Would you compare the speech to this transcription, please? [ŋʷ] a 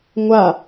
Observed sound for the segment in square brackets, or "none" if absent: ŋʷ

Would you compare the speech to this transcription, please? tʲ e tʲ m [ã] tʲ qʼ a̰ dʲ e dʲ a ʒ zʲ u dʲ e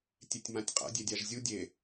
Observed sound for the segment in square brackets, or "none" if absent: ã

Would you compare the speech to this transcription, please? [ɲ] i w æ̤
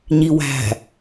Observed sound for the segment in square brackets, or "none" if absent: ɲ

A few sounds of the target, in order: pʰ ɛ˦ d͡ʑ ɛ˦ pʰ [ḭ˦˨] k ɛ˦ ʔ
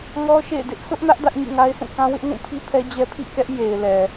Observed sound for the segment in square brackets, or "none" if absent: ḭ˦˨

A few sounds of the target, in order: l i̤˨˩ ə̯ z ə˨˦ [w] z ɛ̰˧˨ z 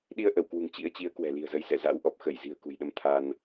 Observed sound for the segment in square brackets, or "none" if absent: j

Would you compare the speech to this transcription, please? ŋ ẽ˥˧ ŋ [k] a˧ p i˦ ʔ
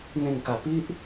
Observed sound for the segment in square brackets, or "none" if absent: k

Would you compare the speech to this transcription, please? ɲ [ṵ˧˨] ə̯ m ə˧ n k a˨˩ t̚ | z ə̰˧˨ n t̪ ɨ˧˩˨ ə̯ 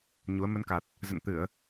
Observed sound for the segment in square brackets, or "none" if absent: u˨˦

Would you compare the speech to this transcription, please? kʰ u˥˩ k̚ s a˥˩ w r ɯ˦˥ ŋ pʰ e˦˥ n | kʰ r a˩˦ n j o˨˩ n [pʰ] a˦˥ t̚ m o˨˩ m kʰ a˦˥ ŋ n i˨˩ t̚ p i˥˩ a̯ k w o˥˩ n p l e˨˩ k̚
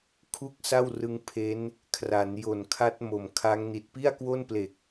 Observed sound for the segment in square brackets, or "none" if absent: kʰ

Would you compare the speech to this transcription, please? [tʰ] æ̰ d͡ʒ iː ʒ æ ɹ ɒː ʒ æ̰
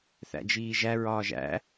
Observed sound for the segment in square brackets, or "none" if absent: θ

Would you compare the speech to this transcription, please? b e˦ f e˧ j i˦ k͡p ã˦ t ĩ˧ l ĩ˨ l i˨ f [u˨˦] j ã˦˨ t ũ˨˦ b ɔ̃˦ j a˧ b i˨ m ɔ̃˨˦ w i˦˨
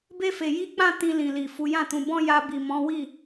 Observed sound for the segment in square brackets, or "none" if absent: u˨˦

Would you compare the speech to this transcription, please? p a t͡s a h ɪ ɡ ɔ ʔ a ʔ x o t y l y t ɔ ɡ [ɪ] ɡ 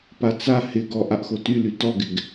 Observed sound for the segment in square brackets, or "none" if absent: ɪ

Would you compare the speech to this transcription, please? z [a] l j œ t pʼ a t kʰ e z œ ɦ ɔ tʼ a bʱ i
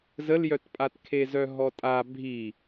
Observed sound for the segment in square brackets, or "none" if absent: ə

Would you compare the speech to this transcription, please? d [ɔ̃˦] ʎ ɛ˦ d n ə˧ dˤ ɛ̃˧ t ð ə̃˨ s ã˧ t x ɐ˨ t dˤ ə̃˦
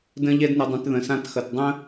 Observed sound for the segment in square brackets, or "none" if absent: ə̃˦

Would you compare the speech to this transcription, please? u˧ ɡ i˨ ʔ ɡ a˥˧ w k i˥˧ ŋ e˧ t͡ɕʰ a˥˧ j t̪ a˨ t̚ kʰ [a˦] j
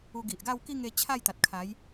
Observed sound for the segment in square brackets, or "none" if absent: a˨˦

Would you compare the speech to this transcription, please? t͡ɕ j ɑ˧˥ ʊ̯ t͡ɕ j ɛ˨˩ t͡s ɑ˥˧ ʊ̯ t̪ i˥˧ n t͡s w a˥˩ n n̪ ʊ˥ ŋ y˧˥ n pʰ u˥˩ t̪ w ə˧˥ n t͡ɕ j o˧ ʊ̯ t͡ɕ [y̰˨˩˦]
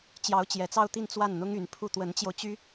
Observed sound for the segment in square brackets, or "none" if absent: y˥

